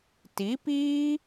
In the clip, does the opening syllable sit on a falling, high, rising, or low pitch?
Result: rising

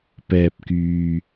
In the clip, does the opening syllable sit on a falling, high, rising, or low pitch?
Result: low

